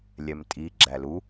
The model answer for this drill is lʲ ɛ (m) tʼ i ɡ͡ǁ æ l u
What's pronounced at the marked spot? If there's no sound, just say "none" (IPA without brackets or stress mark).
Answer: m